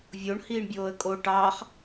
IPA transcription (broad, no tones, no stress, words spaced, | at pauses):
vʲoɳ hiːɳbʲoːə̯kʼo ʈɑːχ